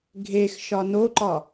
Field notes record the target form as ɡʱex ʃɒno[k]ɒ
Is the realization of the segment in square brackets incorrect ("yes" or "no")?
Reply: yes